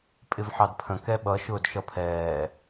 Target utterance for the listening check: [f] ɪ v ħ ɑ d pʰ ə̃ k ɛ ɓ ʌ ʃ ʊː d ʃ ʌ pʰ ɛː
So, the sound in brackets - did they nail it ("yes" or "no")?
no